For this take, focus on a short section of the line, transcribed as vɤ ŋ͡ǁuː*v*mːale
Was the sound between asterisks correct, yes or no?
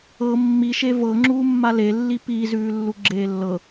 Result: no